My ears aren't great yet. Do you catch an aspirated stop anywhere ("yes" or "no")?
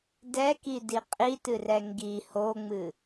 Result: no